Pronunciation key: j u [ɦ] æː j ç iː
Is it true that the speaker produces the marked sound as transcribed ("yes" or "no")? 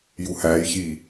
no